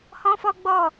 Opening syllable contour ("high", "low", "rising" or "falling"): high